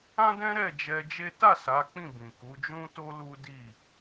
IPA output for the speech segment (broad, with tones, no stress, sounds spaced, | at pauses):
ã˦ d ɛ̃˦ ɾ ɛ˦˨ d͡ʒ ɛ˧ d͡ʒ e˦ t a˦˨ s a˨˦ k͡p ĩ˦˨ b ĩ˨ k u˨˦ d͡ʒ ũ˦ t o˦ l u˦ d i˦˨